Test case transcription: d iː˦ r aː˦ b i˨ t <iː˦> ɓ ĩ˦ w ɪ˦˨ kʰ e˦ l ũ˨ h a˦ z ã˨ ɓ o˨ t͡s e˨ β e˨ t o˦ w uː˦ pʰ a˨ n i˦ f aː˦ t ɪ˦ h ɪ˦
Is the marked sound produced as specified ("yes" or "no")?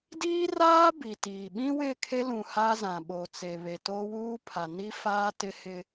no